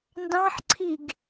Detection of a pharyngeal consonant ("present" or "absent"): present